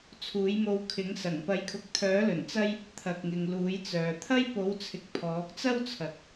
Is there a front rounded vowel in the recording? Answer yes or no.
yes